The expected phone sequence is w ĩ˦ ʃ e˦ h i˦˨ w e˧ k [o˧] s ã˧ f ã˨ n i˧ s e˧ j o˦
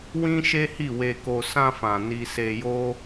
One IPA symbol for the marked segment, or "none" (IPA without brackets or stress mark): o˧